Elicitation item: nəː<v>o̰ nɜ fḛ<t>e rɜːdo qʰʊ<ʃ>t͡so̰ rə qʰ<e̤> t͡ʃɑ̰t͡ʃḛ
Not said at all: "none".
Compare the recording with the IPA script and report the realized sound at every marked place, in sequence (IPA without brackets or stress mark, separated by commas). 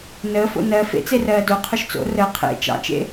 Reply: f, t͡s, ʃ, ḛ